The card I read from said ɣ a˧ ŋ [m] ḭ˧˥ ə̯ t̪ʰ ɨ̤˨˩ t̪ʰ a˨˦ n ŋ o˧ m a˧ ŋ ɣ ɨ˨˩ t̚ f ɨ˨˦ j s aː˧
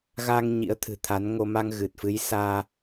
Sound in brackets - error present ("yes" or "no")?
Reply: yes